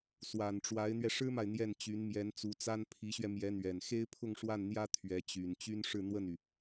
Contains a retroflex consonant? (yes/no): yes